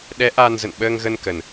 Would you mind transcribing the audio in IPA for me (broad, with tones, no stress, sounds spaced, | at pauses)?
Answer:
ɗ ɛ˨˦ ʔ aː˧ n z ə̰˧˨ n ɓ əː˧ ŋ ɣ ə˧ n k ə˨˩ n